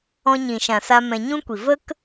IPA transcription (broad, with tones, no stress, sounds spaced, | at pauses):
ɔ̃˧ ɲ ĩ˨ ʃ ã˨ s a˧ m ɛ̃˧ ɲ ũ˦ kʷ i˨ v ə˦ k